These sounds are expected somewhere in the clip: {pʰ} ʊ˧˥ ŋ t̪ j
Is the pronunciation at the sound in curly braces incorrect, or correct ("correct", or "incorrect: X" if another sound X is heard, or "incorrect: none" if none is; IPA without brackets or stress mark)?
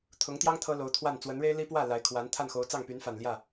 incorrect: t̪ʰ